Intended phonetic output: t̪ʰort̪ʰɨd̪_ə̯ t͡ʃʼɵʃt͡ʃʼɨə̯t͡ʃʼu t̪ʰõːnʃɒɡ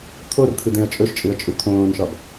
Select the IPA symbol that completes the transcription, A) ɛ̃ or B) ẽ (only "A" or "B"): B